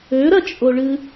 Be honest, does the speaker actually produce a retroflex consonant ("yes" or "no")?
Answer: yes